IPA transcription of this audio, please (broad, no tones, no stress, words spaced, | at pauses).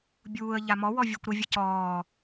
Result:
bʲuːə̯ ʎamɔ wɔvʲøkʷɾə vʲəcɔː